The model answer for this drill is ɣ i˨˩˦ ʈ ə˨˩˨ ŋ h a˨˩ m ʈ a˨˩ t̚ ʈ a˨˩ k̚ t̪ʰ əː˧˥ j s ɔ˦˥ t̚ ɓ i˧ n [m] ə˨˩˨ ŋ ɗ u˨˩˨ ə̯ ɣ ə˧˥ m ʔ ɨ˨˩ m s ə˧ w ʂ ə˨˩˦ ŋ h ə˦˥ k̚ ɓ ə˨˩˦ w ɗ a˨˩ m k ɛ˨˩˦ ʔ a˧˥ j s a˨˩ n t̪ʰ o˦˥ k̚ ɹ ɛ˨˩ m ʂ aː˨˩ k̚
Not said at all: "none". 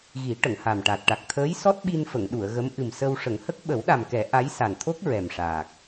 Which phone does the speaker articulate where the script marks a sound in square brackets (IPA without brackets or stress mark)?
f